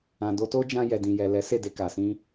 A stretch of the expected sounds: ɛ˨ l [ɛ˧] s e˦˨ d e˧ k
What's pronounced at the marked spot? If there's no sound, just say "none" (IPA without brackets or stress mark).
ɛ˨˦